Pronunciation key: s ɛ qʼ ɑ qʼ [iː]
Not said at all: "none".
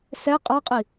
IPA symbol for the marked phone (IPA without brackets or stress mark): i